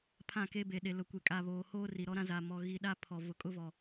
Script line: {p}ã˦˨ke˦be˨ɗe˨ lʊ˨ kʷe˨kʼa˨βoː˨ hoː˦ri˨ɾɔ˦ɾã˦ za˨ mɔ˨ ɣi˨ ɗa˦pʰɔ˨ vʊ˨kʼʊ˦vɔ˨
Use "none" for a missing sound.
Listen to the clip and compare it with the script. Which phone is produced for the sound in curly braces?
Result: pʰ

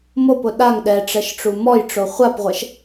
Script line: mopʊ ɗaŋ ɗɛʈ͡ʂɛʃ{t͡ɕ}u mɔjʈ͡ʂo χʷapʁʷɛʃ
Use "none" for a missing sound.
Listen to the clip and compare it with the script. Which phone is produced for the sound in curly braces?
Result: ʈ͡ʂ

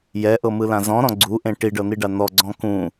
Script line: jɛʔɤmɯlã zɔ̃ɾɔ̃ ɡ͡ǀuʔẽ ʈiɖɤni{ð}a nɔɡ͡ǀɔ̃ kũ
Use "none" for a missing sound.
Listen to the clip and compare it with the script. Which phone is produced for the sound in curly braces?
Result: ɖ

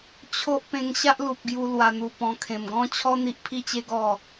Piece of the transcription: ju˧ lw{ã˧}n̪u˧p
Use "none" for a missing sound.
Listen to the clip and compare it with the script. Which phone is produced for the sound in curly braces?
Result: a˧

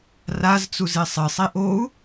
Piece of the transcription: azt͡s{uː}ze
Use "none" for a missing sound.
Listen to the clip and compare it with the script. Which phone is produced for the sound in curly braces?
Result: u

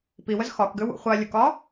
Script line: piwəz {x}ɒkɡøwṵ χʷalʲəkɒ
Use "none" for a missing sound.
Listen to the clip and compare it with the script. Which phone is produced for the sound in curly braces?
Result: x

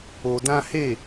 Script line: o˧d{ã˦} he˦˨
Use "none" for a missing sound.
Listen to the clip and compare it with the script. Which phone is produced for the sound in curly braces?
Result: ã˦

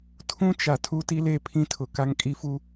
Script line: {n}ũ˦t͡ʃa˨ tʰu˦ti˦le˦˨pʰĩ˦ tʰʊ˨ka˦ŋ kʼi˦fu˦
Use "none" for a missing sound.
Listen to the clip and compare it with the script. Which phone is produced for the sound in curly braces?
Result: tʰ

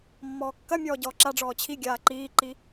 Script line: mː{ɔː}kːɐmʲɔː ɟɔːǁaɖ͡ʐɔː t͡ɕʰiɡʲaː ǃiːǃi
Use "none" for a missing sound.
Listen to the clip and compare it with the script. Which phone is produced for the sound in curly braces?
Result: ɔː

